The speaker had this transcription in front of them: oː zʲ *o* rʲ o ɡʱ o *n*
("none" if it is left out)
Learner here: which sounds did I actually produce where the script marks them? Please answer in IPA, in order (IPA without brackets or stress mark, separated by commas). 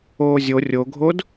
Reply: o, d